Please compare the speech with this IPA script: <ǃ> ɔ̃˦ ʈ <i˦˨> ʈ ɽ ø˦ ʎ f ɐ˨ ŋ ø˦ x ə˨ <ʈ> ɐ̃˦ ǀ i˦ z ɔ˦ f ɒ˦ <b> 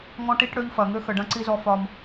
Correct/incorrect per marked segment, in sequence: incorrect: ŋ, incorrect: i˦, incorrect: ɖ, incorrect: m

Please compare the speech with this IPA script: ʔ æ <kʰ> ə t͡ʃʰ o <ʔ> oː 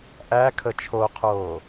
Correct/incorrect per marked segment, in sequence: correct, incorrect: qʰ

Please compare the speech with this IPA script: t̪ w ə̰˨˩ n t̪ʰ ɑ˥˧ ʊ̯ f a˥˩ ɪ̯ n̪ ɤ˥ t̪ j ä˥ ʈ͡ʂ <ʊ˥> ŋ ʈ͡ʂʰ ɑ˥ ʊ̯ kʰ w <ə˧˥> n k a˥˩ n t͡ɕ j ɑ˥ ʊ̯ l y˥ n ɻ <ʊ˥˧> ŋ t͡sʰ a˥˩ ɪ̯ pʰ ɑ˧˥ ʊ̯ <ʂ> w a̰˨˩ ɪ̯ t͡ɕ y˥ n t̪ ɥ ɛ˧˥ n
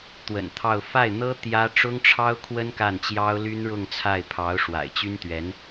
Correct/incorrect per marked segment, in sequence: correct, incorrect: ə˥, correct, correct

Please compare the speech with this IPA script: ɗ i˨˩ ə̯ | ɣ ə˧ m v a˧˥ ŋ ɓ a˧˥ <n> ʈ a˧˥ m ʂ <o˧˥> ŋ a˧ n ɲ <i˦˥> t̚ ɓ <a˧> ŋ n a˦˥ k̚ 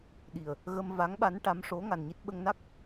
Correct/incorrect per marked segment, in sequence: correct, correct, correct, incorrect: ə˧

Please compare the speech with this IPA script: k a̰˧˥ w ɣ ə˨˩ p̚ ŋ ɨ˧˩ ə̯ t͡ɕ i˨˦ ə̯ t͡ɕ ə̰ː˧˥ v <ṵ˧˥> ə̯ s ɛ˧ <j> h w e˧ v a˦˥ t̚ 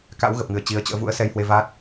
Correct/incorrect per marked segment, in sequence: correct, correct

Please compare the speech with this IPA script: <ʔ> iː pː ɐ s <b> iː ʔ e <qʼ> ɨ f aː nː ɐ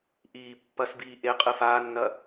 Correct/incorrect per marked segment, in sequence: correct, correct, correct

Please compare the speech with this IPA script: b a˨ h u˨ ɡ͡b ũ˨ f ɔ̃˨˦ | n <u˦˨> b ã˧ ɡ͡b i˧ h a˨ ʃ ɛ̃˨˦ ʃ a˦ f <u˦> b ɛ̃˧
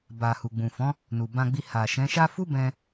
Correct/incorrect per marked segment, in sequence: incorrect: u˨, correct

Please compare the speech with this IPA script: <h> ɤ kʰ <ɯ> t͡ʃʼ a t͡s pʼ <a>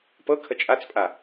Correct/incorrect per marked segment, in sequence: incorrect: p, incorrect: ə, correct

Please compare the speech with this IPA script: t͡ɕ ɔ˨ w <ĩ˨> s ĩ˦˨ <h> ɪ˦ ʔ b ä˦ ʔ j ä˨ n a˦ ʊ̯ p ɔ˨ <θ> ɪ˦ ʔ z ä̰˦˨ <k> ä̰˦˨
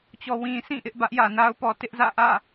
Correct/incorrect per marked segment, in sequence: correct, incorrect: ʔ, incorrect: t, incorrect: ʔ

